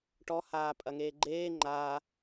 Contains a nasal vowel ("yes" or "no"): no